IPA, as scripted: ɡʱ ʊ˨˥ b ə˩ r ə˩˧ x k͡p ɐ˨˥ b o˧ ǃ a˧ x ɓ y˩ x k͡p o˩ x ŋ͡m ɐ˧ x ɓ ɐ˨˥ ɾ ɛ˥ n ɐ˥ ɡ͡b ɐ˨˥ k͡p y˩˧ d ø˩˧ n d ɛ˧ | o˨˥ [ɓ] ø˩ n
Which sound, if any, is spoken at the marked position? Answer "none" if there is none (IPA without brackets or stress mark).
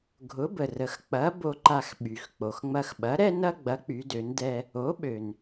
ɓ